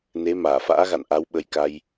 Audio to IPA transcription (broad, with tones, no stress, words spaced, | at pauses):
ne˨˦ maː˧˩fa̰ː˧˥ɣa̰˧˨n ʔa˨˦wɓə˨˦jka˧j